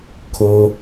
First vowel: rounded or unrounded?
rounded